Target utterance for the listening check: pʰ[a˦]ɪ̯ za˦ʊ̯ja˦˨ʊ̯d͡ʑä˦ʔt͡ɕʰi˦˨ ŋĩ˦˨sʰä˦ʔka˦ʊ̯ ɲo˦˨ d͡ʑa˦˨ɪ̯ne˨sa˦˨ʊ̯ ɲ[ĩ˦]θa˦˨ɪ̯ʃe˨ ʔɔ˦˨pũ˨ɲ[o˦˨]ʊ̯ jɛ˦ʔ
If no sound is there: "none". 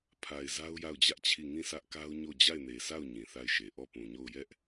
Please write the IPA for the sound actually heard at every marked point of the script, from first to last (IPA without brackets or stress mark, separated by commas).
a˨, ĩ˨, o˦˨